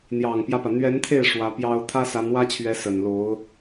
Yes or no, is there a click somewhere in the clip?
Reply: no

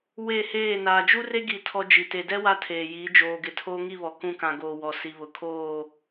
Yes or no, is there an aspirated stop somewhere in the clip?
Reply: yes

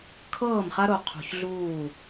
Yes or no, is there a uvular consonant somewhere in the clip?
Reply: yes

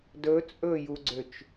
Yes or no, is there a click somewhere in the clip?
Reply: yes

